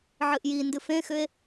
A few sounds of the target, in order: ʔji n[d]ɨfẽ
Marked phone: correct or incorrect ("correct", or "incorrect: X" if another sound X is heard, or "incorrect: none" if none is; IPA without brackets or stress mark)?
correct